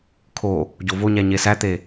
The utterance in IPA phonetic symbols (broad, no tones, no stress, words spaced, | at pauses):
kʰo | ɟovoɲæ ɲesæt̪e